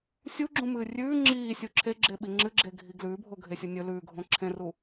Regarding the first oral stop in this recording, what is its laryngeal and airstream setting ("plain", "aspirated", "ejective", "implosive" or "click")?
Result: click